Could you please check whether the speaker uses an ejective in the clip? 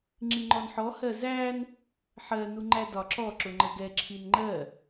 no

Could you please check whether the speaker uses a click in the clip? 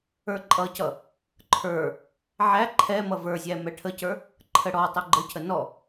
yes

